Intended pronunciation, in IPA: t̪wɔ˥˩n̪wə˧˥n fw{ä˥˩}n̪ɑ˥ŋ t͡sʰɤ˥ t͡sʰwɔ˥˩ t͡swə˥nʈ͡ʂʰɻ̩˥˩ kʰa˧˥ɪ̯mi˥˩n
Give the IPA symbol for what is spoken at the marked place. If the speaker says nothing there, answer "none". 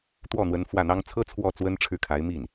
ä˥˩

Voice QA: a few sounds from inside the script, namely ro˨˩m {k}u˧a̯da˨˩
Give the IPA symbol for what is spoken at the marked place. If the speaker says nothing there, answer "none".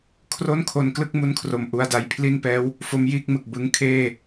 ʔ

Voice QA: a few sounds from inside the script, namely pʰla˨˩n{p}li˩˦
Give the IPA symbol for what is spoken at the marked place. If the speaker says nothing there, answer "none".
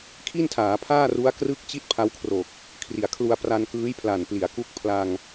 p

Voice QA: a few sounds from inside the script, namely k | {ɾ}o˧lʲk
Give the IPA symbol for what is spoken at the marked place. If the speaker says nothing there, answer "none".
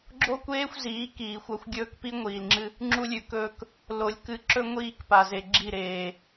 l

